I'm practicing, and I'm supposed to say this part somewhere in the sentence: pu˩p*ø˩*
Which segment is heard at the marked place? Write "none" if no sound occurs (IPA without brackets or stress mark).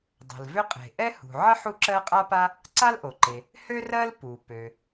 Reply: ø˩